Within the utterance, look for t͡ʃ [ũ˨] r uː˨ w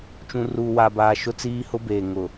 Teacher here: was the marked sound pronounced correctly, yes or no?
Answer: yes